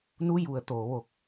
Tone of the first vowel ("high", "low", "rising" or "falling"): rising